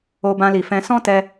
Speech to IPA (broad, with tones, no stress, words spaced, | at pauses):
o˧bã˧li˨fɛ̃˧ sɔ̃˦tɛ˧